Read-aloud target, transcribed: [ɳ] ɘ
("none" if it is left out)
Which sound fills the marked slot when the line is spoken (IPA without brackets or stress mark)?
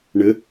ɳ